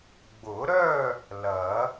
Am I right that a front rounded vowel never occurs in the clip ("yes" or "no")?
no